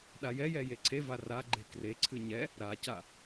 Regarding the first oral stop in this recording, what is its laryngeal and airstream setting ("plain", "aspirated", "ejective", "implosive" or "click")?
implosive